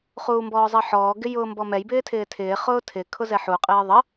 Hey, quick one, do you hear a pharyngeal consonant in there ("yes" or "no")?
yes